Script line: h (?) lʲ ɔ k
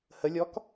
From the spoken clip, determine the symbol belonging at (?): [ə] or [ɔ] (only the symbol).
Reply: ə